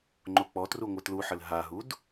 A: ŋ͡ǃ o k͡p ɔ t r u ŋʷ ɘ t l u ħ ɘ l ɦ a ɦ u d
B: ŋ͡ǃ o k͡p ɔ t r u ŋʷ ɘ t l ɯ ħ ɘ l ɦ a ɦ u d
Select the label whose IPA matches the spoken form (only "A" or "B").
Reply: A